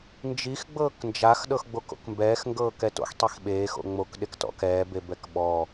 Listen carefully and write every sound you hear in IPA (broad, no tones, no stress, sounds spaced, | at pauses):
n d͡ʒ i x ɡ͡b ɤː k n d͡ʒ a x ɗ ɤ x ɡ͡b o k o̰ k m b ɛː x ŋ ɡ ɤː k ɛ t o̰ x tˤ i x ɓ eː x o̰ ŋ͡m o k ɗ e k t ɔ̰ k ɛː b e b ɛ k ɓ ɔ